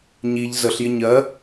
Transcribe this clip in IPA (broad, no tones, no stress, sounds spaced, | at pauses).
ɲ i ʎ z ə ɬ j ɪ ɲ ɜ